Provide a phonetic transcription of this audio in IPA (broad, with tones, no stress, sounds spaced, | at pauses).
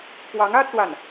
p w ɑ˧˥ ŋ ä˥ t͡s w a˥˩ n